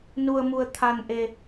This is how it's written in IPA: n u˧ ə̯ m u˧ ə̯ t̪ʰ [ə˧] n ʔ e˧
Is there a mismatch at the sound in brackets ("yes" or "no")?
yes